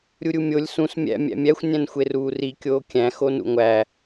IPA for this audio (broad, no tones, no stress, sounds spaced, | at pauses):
ɾʲ u ɾʲ u mʲ o lʲ s ũ s mʲ æ̰ mʲ æ̰ mʲ æ xʷ nʲ æ̃ n xʷ e r uː r i kʲ oː kʲ æ̃ x o n ṵ ŋʷ æ